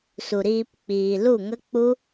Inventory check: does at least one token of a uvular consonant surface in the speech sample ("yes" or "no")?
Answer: no